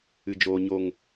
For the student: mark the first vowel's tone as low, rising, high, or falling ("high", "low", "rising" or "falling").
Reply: low